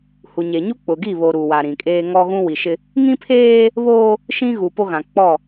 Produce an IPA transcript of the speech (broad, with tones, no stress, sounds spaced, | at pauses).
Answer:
h u˨ ɲ e˨ ɲ u˦ k͡p ʊ˨ ɡ i˦˨ β o˨ ɾ u˨ w a˨ ɾ ĩ˨ kʼ eː˦ ŋ ɔ˦ ɣ ũ˦ w i˨ ʃ ɪ˦ | ŋ ĩ˦ pʰ eː˦ | β oː˦ | ʃ ĩ˦ ɣ u˨ p o˦ ɣ ã˨ k͡p ɔ˦˨